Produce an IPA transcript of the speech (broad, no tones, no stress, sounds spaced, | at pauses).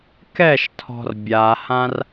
k ɛ ʃ tʰ ɔ̤ r bʲ a h ã r